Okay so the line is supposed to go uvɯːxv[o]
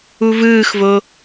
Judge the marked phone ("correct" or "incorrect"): correct